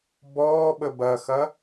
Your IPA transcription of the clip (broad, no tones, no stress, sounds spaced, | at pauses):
b ɔː ɓ ə b ɐ x ɐ